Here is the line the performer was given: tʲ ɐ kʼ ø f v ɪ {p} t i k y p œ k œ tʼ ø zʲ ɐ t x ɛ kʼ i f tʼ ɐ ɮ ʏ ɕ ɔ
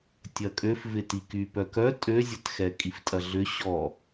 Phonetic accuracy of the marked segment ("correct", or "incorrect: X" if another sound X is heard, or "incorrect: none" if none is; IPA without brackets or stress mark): incorrect: none